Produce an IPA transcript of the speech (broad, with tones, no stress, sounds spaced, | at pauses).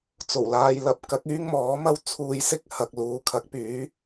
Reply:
t͡s o˨˩ w l aː˧ j l ɐ˧ p̚ k ɐ˨˥ k̚ yː˥ ŋ m ɔː˨˥ m ɐ˥ w t͡sʰ uː˧ j s ɪ˥ k̚ h ɐ˨ k̚ l uː˨˥ kʰ ɐ˨˥ k̚ p yː˨˥